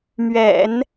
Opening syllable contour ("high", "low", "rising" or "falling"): low